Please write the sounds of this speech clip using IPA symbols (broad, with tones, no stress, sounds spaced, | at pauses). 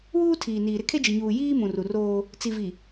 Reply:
w uː˦ tʰ iː˨ n iː˨ ɾ ɪ˦ kʰ e˦ d͡ʒ i˨ ɲ uː˨ j iː˦ m ũ˨ r u˨ r oː˦ | t͡s i˨ v i˨